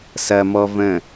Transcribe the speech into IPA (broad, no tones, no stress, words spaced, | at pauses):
sɐ mɔ və̃